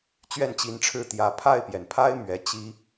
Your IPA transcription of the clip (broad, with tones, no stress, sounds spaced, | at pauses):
t͡ɕ ɥ ɛ˥˩ n t͡ɕ i˧˥ n ʈ͡ʂʰ ɻ̩˥˩ t̪ j ä˧˥ pʰ a˥˩ ɪ̯ p j ɛ˩ n pʰ a˥ ɪ̯ m ɥ ɛ˧˥ t͡ɕ i˥